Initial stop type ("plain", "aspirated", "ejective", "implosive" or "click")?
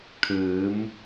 aspirated